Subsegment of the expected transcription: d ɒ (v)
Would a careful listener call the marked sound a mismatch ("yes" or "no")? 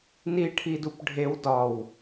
yes